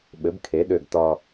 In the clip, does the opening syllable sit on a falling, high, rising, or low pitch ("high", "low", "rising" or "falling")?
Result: rising